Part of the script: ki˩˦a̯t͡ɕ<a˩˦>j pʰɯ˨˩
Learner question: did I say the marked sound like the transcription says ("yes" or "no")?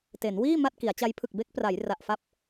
no